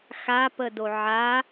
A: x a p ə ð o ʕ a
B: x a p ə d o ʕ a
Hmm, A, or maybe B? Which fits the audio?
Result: B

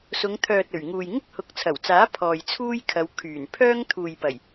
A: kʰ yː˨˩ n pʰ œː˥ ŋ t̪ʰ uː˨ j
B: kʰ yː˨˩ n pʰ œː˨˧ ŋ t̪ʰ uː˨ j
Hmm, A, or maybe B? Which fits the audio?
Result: A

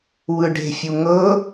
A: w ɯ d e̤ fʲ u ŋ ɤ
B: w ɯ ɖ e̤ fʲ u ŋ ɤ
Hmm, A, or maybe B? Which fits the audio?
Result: B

